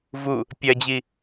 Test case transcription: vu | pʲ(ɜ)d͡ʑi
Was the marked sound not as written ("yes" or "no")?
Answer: no